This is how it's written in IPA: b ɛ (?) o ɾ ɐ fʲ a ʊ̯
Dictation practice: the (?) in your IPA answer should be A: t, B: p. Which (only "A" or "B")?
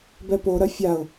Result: B